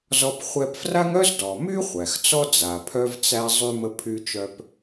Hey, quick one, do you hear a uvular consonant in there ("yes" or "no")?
yes